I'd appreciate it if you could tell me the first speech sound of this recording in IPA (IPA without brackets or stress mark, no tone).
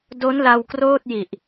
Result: d